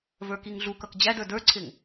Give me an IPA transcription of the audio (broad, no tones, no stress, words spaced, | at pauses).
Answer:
və˞kiŋɮukʌk d͡ʑæd ə˞də˞ǀʰɪŋ